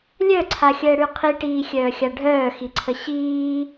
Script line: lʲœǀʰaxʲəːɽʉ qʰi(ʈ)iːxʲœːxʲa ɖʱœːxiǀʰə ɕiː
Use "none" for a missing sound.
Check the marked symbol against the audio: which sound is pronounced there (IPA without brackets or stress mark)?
ʈ